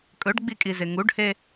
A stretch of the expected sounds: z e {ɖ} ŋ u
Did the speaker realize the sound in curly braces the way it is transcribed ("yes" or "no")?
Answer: no